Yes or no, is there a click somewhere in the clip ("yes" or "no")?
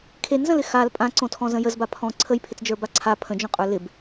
yes